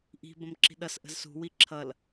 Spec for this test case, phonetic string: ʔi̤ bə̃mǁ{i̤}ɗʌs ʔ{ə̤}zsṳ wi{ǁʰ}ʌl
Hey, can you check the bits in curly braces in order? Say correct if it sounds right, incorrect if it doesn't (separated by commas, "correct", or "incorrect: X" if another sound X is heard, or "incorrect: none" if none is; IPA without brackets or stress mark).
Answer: correct, correct, correct